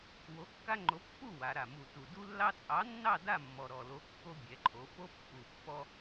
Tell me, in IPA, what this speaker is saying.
w o˨˥ kː a˦ ŋ͡ǃ o˨˥ pː u˥˨ w a˩˧ ɾ a˨˩ m u˨˩ t u˨˩ d u˦ lː ɑ˦ t͡sʼ ɑ˨˥ nː ɑ˥˨ d a˥˨ mː ɔ˨˩ ɾ ɔ˨˩ l o˨˥ kː o˦ bʲ ɛ˩˧ ǃʰ o˩˧ f o˦ pː u˨˩ pː ɔ˦

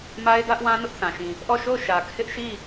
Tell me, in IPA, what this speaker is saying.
m a˦ ɪ̯ d ä˦ ʔ w ã˦ n ʊ˦ ʔ θ ã˨ ʃ ĩ˨ | ʔ ɔ˦˨ ʃ o˦˨ ʊ̯ ʃ ä˨ kʰ ɪ˦ ʔ ʃ i˦˨

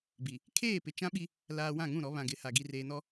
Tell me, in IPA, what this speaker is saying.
b i˨ | kʰ eː˦˨ p ɪ˨ t͡ʃ ã˦ ɓ i˦ | l aː˨ w ã˦˨ ŋ ũ˦˨ ɾ ɔ˨˦ β ã˨ ɡ ɪ˨˦ h a˨ ɡ i˨ r eː˨ n ɔ˦

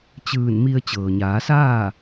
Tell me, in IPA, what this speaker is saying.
t͡ɕ ɯː˧˩ n m i˧ ə̯ t͡ɕ ɤː˩ ɲ aː˩˧ s aː˥˨

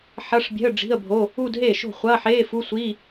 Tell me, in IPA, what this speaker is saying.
ħ ɐ˧˥˧ ʂ bʲ ɛ̤˧˥˧ ə̯ ɖ͡ʐ i̤˧˥˧ ə̯ bʱ o˧˥˧ | u˥˧ d ɦ eː˥˩ ʃ o̤˥˩ χʷ ɐː˧˥˧ ħ eː˧˥˧ f u˧˥˧ sʷ i˧˥˧

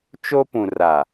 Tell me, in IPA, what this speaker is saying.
t͡ʃ o˦ p ũ˨ r a˨

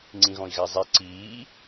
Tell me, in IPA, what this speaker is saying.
ŋ͡ǀ ĩ ɣ ɔ̃ i̯ ɣ a zˤ ɛ ǀ iː

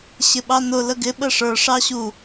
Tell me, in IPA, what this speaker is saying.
ɕ ɪ ɓ ɑ n ʊ l ə ɡ ɪ ɓ ə ʂ ə˞ ʂ ɑ ɕ u

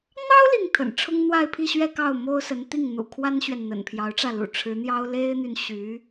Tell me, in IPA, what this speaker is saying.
n̪ ɑ˥ ʊ̯ l i˥˩ ŋ t̪ʰ ə̰˨˩ n ʈ͡ʂʰ ʊ˥ ŋ n̪ w a˥˧ ɪ̯ pʰ i˥˧ ɕ ɥ ɛ˥˧ k ɑ˥˩ ʊ̯ m o˥ ʊ̯ s ə˧˥ n t̪ i˥˩ ŋ n̪ ṵ˨˩ kʰ w a˥ n ɕ ɥ ɛ˨ n n̪ ə̰˨˩ n pʰ j ɑ˧˥ ʊ̯ ʈ͡ʂ ä˥˩ l ṵ˨˩ ʈ͡ʂʰ ɻ̩˧˥ n̪ j ɑ˥ ʊ̯ l e˥ ɪ̯ n̪ y˨ n ɕ y˧˥

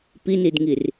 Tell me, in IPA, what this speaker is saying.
p i n i d ŋ i r

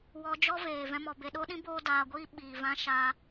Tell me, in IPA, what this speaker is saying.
w ɔ˧ d͡ʒ ɔ˦ v eː˨ v ɛ̃˦ m ɔ˧ b e˧ ɗ o˦ ɗ ĩ˦ b oː˦ d aː˧ ɡʷ iː˦ ɓ iː˧ v ã˦ ʃ aː˦

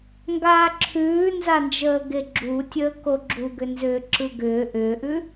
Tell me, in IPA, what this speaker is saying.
ŋ ɡ aː ǁʰ ʉː n z a n d͡ʒ əː ɡ e ɡ͡ǁ u tʲ əː k o ɡ͡ǁ u ɡ ʏ n z ʏː ǁ ɯ ɡ ʏː ʔ ʏː ʔ ʉ

